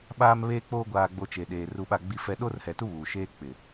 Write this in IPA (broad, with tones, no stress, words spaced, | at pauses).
ɓaː˦mβeː˦k͡poː˦ ɡʷaː˨ɡ͡bo˨ t͡ʃeː˨ɗeː˨ ru˨ ɓa˦˨ɡ͡bi˦fɛ˦ ɗoː˦rhɛ˨tu˦ βuː˨ʃeː˦k͡pɪ˨